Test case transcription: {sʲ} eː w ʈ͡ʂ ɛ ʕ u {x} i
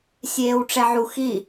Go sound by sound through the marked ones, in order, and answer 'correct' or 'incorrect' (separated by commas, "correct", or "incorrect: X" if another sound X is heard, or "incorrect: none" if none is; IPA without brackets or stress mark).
correct, correct